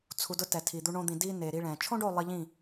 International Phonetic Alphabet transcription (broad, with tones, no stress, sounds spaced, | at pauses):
t͡sʰ u˨ d ʊ˧ t ɛ˨ tʰ i˨ d̪ u˧ ɳ õ˧ d̪ ĩ˨ d i˧ n e˨ ɾ i˧ ɭ ɛ̃˨ t͡ʃʰ õ˦ ɖ o˦˨ lˠ i˧ ʎ ĩ˦˨